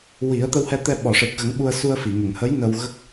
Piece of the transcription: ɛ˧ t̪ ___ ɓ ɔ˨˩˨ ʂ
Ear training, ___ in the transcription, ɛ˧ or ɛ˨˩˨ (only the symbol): ɛ˧